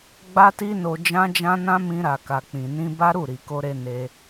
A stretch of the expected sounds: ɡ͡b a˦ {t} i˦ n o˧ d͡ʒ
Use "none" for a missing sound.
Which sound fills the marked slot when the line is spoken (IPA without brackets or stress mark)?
t